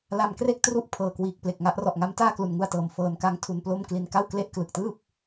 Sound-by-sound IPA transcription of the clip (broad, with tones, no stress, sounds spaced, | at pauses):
l a˧ m k r e˥˩ k̚ t r u˦˥ ʔ pʰ ɤː˨˩ k w iː˨˩ k̚ p l e˨˩ k̚ ŋ a˦˥ ʔ r ɔ˨˩ ʔ ŋ a˦˥ m t aː˥˩ k l u˩˦ n ŋ u˧ a̯ t ɤː˨˩ m f ɤː˧ n k a˦˥ ŋ tʰ u˧ n p l o˥˩ m k l i˧ n k a˥˩ w k l e˦˥ ʔ k l ɯ˨˩ k̚ t ɯː˥˩ p̚